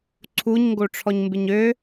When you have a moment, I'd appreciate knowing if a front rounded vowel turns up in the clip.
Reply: yes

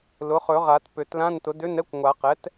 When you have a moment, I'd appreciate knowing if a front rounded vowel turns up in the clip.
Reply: yes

